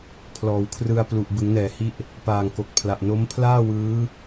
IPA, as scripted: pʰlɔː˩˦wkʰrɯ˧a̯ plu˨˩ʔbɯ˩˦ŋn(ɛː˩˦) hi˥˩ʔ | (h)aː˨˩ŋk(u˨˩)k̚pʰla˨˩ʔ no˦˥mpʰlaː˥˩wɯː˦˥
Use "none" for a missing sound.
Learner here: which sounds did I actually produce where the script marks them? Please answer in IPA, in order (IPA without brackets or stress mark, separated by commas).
ɛː˩˦, p, o˨˩